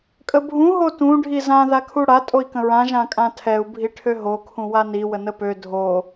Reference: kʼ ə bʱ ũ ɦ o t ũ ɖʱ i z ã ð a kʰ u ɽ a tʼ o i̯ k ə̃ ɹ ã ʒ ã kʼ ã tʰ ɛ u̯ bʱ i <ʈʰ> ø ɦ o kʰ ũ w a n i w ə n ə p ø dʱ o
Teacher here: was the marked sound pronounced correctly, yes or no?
yes